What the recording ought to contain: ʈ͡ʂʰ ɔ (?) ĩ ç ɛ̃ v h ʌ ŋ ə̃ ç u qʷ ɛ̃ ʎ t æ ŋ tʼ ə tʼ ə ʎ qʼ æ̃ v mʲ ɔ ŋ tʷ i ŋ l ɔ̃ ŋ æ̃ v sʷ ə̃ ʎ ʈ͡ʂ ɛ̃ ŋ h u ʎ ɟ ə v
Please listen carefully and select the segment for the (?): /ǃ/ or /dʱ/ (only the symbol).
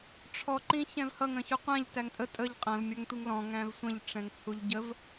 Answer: ǃ